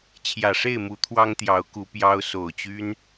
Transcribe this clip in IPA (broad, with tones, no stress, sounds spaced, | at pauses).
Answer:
t͡ɕʰ j ä˨˩ ʂ e˥˨ ɪ̯ m u˨˦ t̪ʰ w ɑ˦ ŋ t̪ j ɑ˨˦ ʊ̯ k u˨˦ p j ɑ˦ ʊ̯ s o˨˩ ʊ̯ t͡ɕ y˦ n